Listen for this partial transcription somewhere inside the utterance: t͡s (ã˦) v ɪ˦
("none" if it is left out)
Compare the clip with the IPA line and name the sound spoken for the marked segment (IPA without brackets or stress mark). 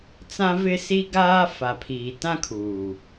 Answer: ã˦